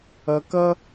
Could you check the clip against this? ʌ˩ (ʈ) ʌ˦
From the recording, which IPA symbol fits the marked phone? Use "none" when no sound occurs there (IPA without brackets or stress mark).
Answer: k